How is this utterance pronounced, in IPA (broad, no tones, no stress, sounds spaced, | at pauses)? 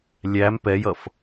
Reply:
lʲ æ m p ɛ j ʌ f